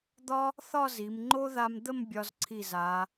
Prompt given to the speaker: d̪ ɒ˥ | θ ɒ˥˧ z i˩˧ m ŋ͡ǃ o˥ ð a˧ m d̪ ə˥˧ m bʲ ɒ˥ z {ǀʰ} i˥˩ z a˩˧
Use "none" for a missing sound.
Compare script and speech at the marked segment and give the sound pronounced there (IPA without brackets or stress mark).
ǀʰ